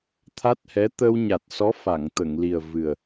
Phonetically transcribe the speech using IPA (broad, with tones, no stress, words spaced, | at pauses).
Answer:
t̪ʰa˦˥t̚hɛ˧˥ t̪ə˧wɲa˨˩t̚sɔ˧˥ fa˨˩˨ŋt̪ə˨˩˨ŋli˨˩ə̯ vɨ˨˩ə̯